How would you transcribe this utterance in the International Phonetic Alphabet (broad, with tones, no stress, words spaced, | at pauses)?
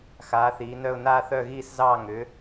xaː˨˥θiː˨˥nœ˥˧ʊ̯ naː˥˧θœ˥˧ɣiː˥˧szɑː˥˧ ŋʏ˨˥